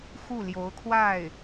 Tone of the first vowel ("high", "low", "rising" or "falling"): falling